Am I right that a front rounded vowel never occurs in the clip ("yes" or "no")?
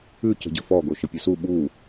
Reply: yes